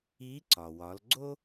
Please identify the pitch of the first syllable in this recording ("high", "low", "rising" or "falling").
rising